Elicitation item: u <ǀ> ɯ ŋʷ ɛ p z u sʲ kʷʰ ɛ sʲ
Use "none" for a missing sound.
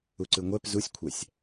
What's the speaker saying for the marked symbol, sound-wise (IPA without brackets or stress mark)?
ǀ